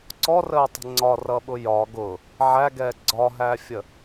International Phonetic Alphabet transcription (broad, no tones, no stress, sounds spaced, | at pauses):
ǀ ɔ r əː tˤ ə̤ ŋ͡ǀ ɒ r ʌ ɓ ʊ j ɒ ɡ ʊ | ʕ æ ɡ ɛː ɡ͡ǀ ɒ ɦ æ fʲ ə